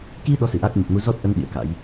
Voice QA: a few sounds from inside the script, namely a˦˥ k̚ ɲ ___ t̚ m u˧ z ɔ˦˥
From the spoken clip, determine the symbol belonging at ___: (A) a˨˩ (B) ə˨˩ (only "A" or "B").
B